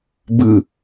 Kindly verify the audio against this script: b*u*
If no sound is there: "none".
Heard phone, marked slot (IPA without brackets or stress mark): ɯ